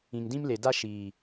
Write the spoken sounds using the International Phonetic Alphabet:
ĩ˨ŋdĩ˦mle˨da˦ ʃiː˨

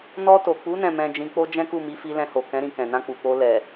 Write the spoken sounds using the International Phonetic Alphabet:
nɔ˧to˨k͡pu˨˦ nɛ̃˦˨mɛ̃˧d͡ʒĩ˧ k͡po˦d͡ʒɛ̃˦ku˦˨ mi˨˦fi˧lɛ̃˧ho˨ kɛ̃˨˦ ɾĩ˧ kɛ̃˨nã˧k͡pu˨k͡po˧ lɛ˨

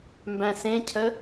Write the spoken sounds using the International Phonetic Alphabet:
mbæ̃sẽcʰə

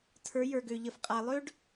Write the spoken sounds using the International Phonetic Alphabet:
tʰə˞˨˦ jə˞˨ɡø˨ʎə˨f qʼa˨lˠø˦ɖ

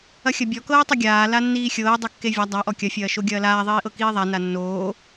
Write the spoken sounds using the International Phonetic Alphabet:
ɐxʲɐbʲɔ kɤːtˤɐɡʲaː lanːiːxʲɤː dˤʌkːevʲa dˤa ʔɔkʲɐ fʲɐːʃoɡʲɐːlaː ðˤiːʔɤkiːðˤa nanːoː

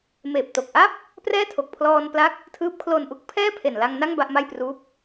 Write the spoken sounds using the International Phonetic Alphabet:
meː˨˩p̚to˨˩k̚ʔa˥˩p̚ | prɛː˥˩tʰo˨˩k̚pʰlɔː˧npla˦˥k̚ | tʰɯː˦˥p̚kʰlo˧nʔu˦˥k̚ pʰɛː˥˩pʰe˨˩nla˧ŋ na˥˩ŋ ba˥˩ʔma˥˩jpruː˦˥p̚

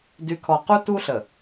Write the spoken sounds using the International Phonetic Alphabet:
dy˨kʰɔ˨qu˦ tu˦ɬə˨

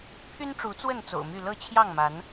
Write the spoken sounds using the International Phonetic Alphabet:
pʰy˦nʈ͡ʂu˨˦t͡swə˥˨n t͡so̰˨˩ʊ̯my˥˨ lɤ˥˨t͡ɕʰjɑ˥˨ŋma˨˦n

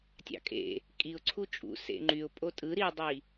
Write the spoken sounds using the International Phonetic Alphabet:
tʲɑ̰kʼḛ | kʼiʊ̯ ǀʰut͡ʃʼṵ sḛŋ͡ǃyʊ̯ pʼotʼɯ ɾidˤi

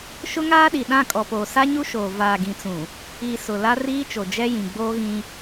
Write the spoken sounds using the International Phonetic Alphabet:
ʃʊ˦ŋaː˦ɗi˨ ɗã˦˨kʼɔ˨poː˨ sa˦ɲu˦ʃoː˨ vaː˨ɡĩ˨t͡sũ˨ | i˨ sʊ˨ la˦ riː˦t͡ʃo˨d͡ʒɛ˦jĩ˨ ɡ͡boː˦ɣĩ˦

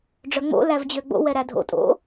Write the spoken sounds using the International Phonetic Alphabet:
ɖ͡ʐœŋ͡mo̰ lævd͡ʑøɡ͡bo̰ wɛɾædʱo̰ tʼo̰

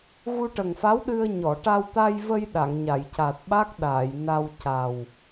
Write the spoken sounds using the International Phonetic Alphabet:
ɣu˧ʈə˨˩ŋfa˧˥wɗɨ˧ə̯ ɲɔ˨˩˨ʈa˧wt̪a˧jvə˧j ɗa˨˩˨ŋɲa˨˩˨jca˨˩t̚ɓa˦˥k̚ ɗaː˨˩˨jna˧wca˨˩w

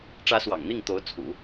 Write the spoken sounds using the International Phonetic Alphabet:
ʈ͡ʂä˧˥ swɑ̰˨˩ŋ n̪i˥˩ŋt̪o˧˥ʊ̯t͡sʰṵ˨˩˦

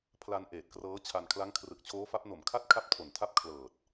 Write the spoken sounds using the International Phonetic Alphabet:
pʰla˧n ʔeː˨˩t̚krɤː˦˥t͡ɕʰa˧n kʰla˦˥ŋkʰrɯ˨˩k̚t͡ɕʰoː˦˥fa˦˥p̚ no˨˩mkʰa˥˩t̚ kʰa˥˩p̚tʰo˨˩ntʰa˥˩p̚ kʰlɤː˨˩t̚

